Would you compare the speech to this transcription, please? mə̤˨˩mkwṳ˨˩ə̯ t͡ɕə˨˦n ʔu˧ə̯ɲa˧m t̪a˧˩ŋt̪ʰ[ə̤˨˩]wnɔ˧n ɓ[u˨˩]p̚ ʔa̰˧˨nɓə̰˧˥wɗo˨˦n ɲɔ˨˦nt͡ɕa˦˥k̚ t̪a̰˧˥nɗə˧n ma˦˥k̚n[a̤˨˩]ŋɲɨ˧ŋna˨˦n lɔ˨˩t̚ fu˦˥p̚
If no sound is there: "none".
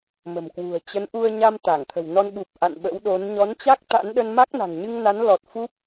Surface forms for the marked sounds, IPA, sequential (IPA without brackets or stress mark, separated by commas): ə̤˨˩, u˨˩, a̤˨˩